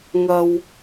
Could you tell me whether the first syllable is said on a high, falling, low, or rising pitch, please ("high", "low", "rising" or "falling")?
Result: high